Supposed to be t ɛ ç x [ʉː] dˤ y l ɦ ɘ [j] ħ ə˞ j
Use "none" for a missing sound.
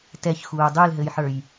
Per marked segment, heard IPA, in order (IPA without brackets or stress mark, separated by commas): uː, j